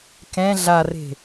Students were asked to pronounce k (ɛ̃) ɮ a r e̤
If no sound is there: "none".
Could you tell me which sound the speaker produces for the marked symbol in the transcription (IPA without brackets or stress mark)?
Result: ɛ̃